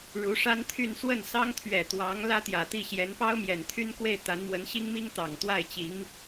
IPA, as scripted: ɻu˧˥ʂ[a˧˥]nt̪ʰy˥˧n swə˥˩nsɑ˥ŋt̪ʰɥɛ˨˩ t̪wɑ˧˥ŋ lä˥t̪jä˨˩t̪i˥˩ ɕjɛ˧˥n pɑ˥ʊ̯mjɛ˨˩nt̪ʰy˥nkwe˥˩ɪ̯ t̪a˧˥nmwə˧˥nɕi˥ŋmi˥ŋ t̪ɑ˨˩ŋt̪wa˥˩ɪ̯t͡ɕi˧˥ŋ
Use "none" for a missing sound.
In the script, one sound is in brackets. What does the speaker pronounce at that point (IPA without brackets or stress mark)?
a˥